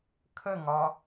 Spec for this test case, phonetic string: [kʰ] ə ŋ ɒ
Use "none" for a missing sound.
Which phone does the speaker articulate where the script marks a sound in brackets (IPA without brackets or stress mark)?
kʰ